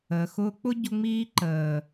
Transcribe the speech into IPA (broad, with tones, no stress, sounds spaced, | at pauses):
əː˨ x ʊː˦ k͡p ʊ˦ ɟ ʊ˧ ŋ͡m iː˧ ǃ əː˨